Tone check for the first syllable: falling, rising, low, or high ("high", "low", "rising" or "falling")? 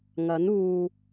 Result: rising